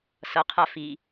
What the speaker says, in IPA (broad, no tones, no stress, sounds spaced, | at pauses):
s ʌ qʰ a f i